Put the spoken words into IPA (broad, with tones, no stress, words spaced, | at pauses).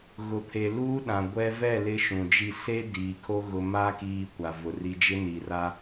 ɣʊ˨pʰe˨ luː˦ɗã˨ ɡʷɛ˦ vɛ˦˨ lɪ˦ʃũ˨d͡ʒi˦˨ se˦ diː˨kʰo˦ ɣʊ˨ ma˦ kiː˦kʷa˨vʊ˨ri˦ d͡ʒɪ˦ni˨ra˦